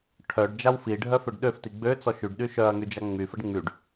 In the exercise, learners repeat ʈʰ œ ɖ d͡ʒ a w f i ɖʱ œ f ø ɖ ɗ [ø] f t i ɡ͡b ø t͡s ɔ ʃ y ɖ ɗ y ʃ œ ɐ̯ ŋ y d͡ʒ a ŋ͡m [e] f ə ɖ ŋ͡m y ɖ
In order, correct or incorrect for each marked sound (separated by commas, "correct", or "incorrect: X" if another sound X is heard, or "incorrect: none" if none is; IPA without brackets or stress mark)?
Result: correct, incorrect: y